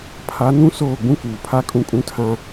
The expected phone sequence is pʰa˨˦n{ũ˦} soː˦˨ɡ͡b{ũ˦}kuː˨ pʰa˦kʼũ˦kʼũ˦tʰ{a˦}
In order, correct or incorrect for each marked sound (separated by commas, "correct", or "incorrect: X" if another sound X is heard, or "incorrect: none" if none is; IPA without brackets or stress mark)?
correct, correct, incorrect: ã˦